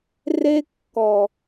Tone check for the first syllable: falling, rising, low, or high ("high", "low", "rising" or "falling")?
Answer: high